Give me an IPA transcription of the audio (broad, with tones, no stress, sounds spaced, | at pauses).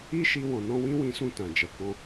i˦ ʃ i˧ w ɔ̃˨ n ɔ̃˧ w ĩ˦ w ĩ˧ s ũ˧ t ã˨ d͡ʒ ɛ˨ k ɔ̃˧